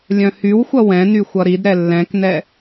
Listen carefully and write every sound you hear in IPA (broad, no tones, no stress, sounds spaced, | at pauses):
lʲ œ̃ h y w xʷ ʌ w ɛ̃ n y xʷ ʌ ɾ i d ɾ ɛ lː ɛ̃ k n ɛ